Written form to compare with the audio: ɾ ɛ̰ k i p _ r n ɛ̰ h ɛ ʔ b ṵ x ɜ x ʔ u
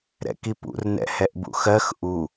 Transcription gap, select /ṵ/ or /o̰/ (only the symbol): ṵ